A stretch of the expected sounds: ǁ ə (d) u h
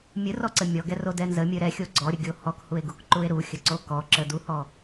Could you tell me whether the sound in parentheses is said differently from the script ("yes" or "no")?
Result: no